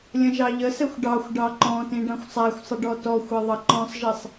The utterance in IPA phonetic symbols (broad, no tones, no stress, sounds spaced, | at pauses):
lʲ ə̃ ʒ ɑ ʎ ə s ɛ xʷ ɖ ɑ xʷ ɖ ɑ ǃ ɔ̃ t ĩ ɖ ɑ̃ xʷ sˤ æ xʷ sˤ ə ɖ ɔ t ɔ xʷ ɛ ðˤ ʌ ǃ ɔ̃ sˤ ʒ i sˤ